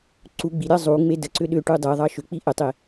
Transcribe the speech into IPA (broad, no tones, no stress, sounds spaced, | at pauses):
ǀ u ɡ͡b i ɾʲ ɑ zˤ u ŋ͡m e d ə ǀ ʏ ɗ ʏ ʈ u dˤ e ðˤ ɑ ʃ ʏ k͡p i ʔ ə tˤ e